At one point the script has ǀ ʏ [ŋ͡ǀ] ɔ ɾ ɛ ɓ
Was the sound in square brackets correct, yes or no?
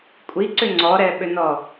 yes